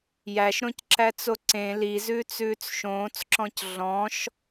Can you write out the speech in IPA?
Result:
jæʃɾõcǁæt͡so ǀẽ lizʉːt͡sʉːt͡s ʃõːt͡sǁɔ̃c ɮɔ̃ʃ

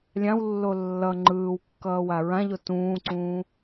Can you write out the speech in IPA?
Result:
lʲãwlːo lːʌ ŋ͡ǃɯːwkːʌːwa ɹãʎo tũːǀũː

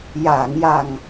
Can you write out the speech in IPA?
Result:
jaː˨˩˨ŋja˨˩ŋ

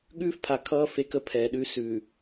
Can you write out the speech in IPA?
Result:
ɠʉː˦fpʰa˨ kʰʌː˦ fe˦kə˦pʰɛː˨ɗʉ˦ sʉ˨

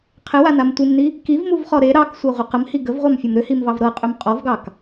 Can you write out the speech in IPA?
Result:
qʰɪwanam tʷɪmni | kivmuvχɔ ɾe ɾɑksʷɤʁʷə qəmhi ɡəvʁʷɑmfʲɔm ɾʏhimvɑv ɾɤqʼʏm qʼɔvɡɑk

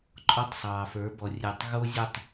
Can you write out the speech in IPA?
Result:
ǃʼɔ˦tˤsˤɑː˨fə˞˨˦bɔ˨ rʲe˨tˤ ɣo˦zʲʊ˦˨tˤ

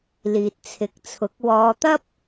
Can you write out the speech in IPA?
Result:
liː˨t̚t͡sʰɪ˨˥k̚t͡sʰʊ˨˥k̚ wɔː˨˧t̪ɐ˥p̚

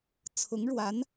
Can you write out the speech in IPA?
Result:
t͡sʰʊ˧˥ŋɻwa˧˥n

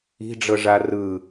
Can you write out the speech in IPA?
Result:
i̤ɖ͡ʐɤʐa rɯ

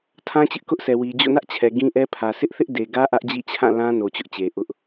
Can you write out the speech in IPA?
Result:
tʰã˦t͡ɕɪ˦ʔkʊ˦ʔsʰɛ˨ wi˨d͡ʑo̰˦˨nä˦ʔt͡ɕʰɛ˨ ɡĩ˦ʔɛ˦pʰä˨ sɪ˦ʔθɪ˦ʔde˨ɡä˦ ʔä˦ʔd͡ʑḭ˦˨ t͡ɕʰã˦˨lã˦ no˨t͡ɕʊ˦ʔt͡ɕe˨ ʔʊ˦ʔ

